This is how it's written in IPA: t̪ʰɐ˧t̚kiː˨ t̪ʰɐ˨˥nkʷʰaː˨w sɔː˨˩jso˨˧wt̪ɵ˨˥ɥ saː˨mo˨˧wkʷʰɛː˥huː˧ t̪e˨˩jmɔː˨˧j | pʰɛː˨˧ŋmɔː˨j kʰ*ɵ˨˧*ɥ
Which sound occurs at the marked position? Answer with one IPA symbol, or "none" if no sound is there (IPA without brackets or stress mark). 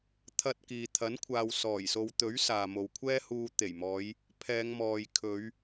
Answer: ɵ˨˧